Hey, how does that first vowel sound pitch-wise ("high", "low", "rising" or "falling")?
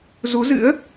rising